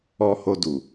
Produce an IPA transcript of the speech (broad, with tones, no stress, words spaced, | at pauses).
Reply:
ɔ˧ho˧ du˨